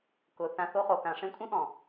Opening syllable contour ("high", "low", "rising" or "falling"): low